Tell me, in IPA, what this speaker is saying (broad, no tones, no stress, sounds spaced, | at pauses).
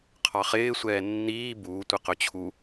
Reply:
qʰ ɑ χ ɪː sʷ ɛː nː iː b uː tʷ ɪ q ɵ t͡ɕʰ u